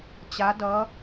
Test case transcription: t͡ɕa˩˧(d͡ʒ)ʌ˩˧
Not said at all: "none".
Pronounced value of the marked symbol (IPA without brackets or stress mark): d